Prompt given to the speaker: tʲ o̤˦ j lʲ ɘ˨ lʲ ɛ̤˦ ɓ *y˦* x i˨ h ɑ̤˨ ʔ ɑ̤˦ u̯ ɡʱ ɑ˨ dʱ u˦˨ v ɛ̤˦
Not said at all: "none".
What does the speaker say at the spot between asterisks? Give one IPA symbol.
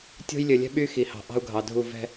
y˦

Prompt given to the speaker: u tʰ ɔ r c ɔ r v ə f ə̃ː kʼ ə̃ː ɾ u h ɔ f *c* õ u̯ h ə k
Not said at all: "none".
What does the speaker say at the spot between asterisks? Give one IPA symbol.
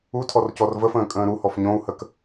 ɲ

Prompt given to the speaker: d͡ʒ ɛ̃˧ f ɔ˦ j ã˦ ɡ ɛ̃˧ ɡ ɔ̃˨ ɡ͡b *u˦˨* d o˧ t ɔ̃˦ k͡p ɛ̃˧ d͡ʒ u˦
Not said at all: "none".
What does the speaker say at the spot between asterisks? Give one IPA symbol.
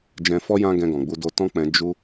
u˧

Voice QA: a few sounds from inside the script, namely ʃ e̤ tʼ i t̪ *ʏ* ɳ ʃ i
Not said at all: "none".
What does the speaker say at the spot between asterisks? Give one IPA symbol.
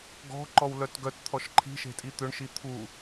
ʏ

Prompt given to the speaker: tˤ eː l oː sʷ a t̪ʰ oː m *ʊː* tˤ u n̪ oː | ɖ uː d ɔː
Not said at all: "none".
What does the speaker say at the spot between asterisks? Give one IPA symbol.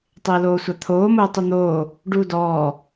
ʊː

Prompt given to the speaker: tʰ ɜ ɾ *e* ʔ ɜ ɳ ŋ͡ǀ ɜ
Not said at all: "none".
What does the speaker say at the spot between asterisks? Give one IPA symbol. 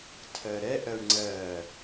ɛ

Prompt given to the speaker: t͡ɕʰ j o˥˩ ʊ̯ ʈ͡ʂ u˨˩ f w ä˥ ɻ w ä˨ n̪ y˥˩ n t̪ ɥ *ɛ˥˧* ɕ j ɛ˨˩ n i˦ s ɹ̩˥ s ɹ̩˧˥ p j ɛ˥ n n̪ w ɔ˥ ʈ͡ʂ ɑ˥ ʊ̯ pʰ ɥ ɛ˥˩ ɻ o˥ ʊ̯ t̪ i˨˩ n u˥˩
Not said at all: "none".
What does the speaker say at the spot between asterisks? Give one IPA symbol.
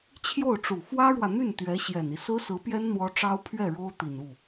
ɛ˧˥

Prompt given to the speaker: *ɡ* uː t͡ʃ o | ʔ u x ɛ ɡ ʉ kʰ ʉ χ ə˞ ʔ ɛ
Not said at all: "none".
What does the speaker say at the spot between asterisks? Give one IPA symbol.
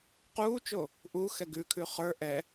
q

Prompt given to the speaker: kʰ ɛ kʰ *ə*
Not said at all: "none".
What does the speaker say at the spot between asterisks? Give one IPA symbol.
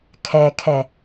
ɛ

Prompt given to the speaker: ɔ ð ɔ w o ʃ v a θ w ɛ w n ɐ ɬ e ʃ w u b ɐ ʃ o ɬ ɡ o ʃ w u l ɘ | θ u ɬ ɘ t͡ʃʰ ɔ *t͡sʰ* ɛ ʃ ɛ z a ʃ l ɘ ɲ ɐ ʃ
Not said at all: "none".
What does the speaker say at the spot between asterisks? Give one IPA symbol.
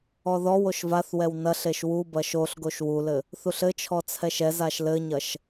t͡sʰ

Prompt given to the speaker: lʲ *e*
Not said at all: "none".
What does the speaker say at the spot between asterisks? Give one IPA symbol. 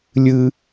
ɨ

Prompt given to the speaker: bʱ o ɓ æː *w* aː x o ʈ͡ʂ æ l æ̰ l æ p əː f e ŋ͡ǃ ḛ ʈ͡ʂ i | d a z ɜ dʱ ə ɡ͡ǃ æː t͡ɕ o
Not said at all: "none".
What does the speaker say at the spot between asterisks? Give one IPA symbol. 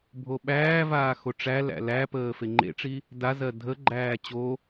v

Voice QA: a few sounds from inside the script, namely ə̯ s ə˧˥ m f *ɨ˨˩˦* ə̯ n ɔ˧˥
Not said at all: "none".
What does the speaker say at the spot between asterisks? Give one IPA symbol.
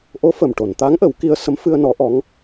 ɨ˧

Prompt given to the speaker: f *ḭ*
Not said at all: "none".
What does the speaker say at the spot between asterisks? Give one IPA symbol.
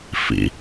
ḭ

